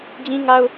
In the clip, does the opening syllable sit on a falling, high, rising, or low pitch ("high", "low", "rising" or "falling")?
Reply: high